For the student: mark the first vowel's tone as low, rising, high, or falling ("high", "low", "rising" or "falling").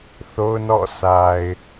high